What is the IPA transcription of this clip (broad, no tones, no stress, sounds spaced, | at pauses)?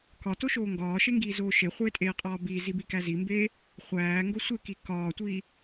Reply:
k ɒ t o ʃ oː ŋ ɡ ɒː ʃ e ŋ ɡ iː z oː ʃ e χʷ eː tʼ eː qʼ ɒː b iː z i b i k æ z i m b eː | χʷ æː ŋ ɡ o sʷ e k i k ɒː tʷ iː